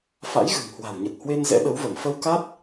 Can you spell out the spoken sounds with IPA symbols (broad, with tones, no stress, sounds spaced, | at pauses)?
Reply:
f a̰˧˥ j ɣ ɨ̤˨˩ ŋ h w a̤˨˩ w ɲ ə˨˩ t̚ h w e˧ n z ɛ̰˧˥ ɗ ə˨˦ w v ə˧˩ m f ə˧ w k a˦˥ t̚